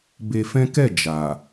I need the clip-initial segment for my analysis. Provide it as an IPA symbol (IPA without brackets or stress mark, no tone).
b